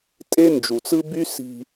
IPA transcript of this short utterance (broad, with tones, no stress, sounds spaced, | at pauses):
tʼ e˦ n d͡ʒ u˨ t͡s ɯ˦ b y˦ s i̤˧